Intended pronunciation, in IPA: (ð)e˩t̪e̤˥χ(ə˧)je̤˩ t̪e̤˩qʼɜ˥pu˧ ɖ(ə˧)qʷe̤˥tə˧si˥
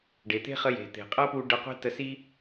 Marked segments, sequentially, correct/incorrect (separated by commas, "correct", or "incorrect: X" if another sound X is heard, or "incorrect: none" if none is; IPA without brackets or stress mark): incorrect: ɖ, correct, correct